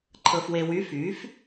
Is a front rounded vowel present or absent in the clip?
present